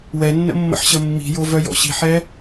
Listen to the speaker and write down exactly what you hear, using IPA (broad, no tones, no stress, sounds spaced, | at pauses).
w ɛ nː ə̰ mː ə̰ ħ ɕ ə mː i̤ j o v œ j ɔ̰ ɕ i̤ ħ ɛ